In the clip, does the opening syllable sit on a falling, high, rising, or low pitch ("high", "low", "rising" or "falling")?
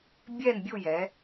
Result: falling